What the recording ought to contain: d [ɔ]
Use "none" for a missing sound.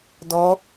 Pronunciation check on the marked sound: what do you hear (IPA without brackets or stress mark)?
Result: ɔ